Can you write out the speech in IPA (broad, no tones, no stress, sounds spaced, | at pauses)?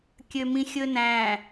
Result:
kʲ ø m ĩ xʲ ɵ n æ̃